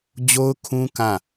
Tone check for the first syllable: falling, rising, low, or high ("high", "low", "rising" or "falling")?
high